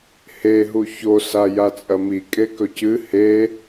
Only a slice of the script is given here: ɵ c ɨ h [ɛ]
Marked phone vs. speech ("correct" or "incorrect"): incorrect